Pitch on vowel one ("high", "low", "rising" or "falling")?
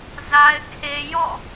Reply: high